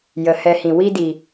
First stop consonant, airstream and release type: plain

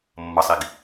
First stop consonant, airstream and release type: plain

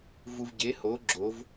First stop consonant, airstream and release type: plain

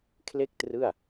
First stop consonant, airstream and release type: aspirated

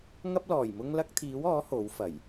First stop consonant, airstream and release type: plain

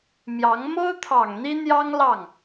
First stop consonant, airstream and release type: aspirated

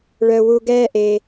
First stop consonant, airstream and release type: plain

